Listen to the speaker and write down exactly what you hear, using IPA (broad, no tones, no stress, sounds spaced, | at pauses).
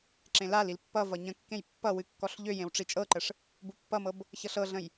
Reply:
ǁ ẽ l a l i l pː ʌ v ʌ ɲ ə̃ kː ẽ j pː ʌ w ɨ kː ɔ ɬ ʎ ø j ẽ w ʈ͡ʂ i t͡ʃʼ ɤ ǃ ə ʂ | b u pː ʌ m ɤ b | ç ɤ ɬ ɤ ɮ ə̃ j